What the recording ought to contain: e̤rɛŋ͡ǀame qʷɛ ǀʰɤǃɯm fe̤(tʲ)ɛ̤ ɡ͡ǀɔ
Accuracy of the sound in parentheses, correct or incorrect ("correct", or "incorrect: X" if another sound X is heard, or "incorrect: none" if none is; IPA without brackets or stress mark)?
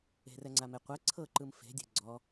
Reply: incorrect: dʲ